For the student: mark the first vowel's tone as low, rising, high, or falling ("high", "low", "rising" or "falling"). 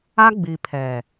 high